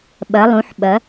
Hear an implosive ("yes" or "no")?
yes